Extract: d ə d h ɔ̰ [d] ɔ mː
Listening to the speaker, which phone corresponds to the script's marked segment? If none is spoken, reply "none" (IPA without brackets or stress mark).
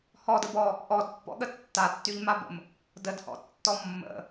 tː